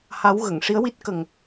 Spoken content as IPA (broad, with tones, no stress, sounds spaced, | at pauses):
h a˧˥ w ɣ ə˨˩˨ ŋ ʂ i˧˥ ə̯ w i˦˥ t̚ k ə˨˩ ŋ